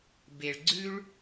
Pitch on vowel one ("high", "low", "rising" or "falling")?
low